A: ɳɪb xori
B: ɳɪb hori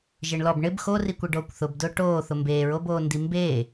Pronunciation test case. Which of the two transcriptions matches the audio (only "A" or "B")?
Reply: A